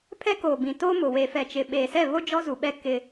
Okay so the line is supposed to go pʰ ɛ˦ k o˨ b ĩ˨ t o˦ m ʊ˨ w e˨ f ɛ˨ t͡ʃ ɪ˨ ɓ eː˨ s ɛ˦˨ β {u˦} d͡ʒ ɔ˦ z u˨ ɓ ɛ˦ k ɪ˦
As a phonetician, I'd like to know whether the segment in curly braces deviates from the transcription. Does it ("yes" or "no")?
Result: yes